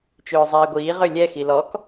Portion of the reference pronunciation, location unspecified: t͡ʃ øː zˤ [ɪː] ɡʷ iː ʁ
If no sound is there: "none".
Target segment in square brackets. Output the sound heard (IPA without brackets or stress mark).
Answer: iː